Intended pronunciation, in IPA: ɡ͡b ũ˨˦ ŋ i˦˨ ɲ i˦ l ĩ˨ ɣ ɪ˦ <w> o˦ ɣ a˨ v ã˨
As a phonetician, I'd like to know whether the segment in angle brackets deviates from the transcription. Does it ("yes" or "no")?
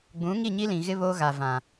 yes